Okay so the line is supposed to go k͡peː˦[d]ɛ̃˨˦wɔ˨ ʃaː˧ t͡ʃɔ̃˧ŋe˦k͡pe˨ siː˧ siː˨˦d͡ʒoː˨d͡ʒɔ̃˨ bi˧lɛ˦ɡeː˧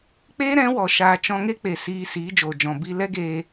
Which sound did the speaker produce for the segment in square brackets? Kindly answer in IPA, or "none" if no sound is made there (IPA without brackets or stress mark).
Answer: ɾ